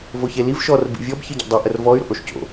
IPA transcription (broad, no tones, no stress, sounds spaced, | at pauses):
v o ç e l i v ʃ ɔ r b ḭ vʲ ɔ b ç ɨ ɟ o̰ dˤ ɨ ʔ ə r v ɔ y̯ ɾ o̰ ʔ o ʃ c o̰